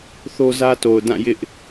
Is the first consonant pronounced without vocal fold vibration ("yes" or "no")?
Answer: yes